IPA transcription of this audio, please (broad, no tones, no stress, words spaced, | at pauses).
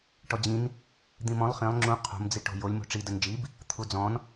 ʈɔd͡ʑĩn | d̪ĩmɔ̃lˠ χĩlˠ ŋ͡ǁũ qʰo̤m d͡ziʈo̤jolʲ mo̤ʈ͡ʂi dənd͡ʒib | t̪ʰud͡zɔ̃n